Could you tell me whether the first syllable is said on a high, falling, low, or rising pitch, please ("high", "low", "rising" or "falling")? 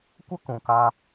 high